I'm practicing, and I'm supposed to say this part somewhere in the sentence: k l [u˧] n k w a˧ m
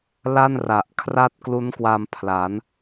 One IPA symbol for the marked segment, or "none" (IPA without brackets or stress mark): u˦˥